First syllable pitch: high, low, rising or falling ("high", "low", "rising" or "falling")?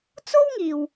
high